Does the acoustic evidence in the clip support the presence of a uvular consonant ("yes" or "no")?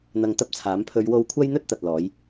no